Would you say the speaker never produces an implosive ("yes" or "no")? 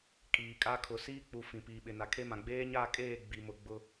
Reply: no